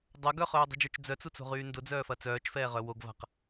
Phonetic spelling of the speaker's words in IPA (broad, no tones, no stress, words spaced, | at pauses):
dˤɐ ɡœχœːdˤṳd͡ʒœt͡ʃ d͡zœt͡sut͡so̤ʁyː ndʊd͡zœːfɐ t͡sœːt͡ʃfɛːʁœ woɡva̤q